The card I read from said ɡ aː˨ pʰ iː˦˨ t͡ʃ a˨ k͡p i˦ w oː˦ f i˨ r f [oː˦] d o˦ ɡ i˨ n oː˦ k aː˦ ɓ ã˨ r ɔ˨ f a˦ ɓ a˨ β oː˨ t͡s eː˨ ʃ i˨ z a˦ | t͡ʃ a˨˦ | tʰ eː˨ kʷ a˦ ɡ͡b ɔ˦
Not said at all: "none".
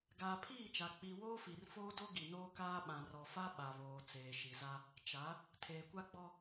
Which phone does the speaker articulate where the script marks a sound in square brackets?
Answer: oː˦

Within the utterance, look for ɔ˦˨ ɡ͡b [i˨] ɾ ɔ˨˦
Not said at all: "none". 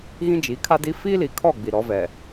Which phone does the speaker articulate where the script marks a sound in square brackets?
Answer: i˨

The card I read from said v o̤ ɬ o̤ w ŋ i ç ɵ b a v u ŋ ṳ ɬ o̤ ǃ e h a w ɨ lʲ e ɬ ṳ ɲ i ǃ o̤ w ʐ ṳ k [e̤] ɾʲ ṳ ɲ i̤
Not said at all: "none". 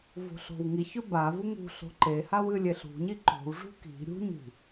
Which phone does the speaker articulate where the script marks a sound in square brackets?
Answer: i̤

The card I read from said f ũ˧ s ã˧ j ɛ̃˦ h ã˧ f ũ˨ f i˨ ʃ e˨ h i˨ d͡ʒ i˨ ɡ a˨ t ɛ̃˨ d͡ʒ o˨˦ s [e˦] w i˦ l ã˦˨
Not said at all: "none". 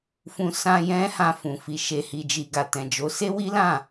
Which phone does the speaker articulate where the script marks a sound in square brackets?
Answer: e˦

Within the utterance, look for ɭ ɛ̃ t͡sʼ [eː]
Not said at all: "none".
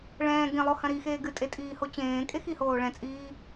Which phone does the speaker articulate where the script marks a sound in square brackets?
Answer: iː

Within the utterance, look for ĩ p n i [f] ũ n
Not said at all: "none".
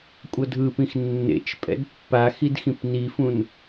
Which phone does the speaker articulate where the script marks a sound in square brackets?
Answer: f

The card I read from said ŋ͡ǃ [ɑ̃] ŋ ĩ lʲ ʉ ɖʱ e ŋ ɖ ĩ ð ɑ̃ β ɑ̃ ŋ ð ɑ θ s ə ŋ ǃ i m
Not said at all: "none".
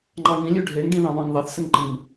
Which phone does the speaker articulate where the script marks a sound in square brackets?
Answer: ɑ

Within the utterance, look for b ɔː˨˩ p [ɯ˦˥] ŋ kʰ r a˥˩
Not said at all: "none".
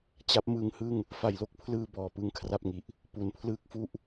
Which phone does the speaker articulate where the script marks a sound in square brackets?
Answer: ɯ˦˥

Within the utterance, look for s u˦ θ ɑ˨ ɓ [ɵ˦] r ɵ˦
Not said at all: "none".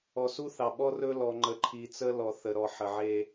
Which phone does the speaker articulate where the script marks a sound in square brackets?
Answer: ɔ˦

